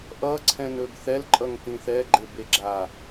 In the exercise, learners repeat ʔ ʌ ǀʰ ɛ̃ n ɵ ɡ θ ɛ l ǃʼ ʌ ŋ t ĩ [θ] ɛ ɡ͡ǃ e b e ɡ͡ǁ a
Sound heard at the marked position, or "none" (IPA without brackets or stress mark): θ